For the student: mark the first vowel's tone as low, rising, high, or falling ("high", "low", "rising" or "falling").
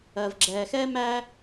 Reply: low